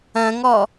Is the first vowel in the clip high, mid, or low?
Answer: low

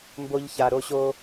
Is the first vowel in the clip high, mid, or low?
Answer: mid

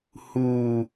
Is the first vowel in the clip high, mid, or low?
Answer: high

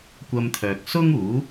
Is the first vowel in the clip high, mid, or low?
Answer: low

